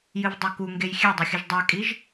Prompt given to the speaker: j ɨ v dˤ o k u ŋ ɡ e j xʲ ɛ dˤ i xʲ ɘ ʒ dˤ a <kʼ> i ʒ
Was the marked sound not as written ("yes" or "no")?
no